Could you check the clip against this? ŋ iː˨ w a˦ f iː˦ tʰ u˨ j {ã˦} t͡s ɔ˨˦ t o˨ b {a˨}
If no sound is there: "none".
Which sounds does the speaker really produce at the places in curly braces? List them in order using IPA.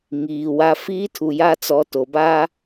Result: a˦, a˦

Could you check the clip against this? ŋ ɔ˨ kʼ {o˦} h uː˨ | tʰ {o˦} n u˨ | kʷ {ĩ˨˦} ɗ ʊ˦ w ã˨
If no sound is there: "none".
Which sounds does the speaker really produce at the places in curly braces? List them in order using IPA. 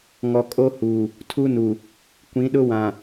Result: o˦, u˦, ĩ˨˦

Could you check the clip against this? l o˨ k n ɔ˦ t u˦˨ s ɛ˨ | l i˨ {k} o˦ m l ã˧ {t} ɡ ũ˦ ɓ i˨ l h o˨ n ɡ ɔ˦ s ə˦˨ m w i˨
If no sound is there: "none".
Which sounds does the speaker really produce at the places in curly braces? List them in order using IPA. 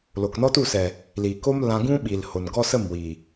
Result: k, none

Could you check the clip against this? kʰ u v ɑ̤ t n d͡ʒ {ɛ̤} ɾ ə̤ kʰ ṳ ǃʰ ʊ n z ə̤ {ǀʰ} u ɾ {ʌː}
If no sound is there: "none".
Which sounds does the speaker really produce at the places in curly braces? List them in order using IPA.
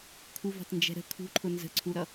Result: ɛ̤, ǀʰ, ʌ

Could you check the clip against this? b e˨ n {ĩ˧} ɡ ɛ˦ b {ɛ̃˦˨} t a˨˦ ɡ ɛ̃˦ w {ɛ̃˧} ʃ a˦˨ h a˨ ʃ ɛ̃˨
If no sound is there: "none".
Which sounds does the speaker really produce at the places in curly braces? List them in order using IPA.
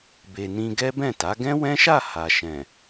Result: ĩ˧, ɛ̃˦˨, ɛ̃˦

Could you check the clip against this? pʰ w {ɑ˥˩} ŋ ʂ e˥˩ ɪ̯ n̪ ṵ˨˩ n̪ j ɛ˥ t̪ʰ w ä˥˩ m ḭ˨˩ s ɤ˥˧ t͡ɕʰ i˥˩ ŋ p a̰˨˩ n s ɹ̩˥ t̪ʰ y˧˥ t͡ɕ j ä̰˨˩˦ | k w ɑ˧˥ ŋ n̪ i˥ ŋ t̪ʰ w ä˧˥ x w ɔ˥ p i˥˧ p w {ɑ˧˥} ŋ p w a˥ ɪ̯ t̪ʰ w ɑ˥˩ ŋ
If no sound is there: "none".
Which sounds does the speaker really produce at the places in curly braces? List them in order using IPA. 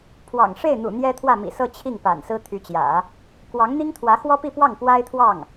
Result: ɑ̰˨˩, ɑ˥˩

